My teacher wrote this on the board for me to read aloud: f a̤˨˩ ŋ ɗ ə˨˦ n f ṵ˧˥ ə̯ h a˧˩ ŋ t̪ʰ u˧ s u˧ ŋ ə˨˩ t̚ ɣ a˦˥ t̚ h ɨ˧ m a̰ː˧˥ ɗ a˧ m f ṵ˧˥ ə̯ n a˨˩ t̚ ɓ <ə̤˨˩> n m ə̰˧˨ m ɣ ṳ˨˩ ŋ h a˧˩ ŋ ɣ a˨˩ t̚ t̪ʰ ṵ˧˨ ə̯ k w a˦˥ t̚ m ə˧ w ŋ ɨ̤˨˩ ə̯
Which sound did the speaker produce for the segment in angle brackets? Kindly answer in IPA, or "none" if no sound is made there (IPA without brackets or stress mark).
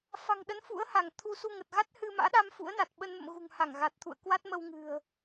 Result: ə˧